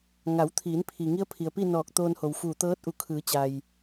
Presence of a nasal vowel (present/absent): absent